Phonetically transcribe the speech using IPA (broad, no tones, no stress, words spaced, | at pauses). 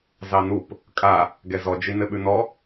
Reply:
zɑnup | kʼa | ɡɛzɔ d͡ʒinɘɓʉnɔ